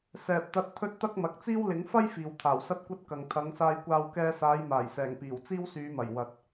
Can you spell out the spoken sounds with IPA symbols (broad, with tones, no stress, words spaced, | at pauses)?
sɛː˨p̚t̪ɐ˧t̚ t̪ʰɵ˥t̚t̪ɐ˥k̚mɐ˨k̚ t͡siː˥wlɪ˨˥ŋ fɐ˥j fiː˨wt̪ʰaː˨˩wsɐ˥t̚ kʷɐ˥t̚kɐ˨ŋ t̪ʰɐ˨˧ŋsaː˧jkʷaː˧w kɛː˧saː˨˧j maː˨˩jsɛː˨˩ŋpiː˨˩w t͡siː˥wsyː˨˧mɐ˨˩j wɐ˨t̚